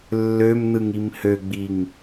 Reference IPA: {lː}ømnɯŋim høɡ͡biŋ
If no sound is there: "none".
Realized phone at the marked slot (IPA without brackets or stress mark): lː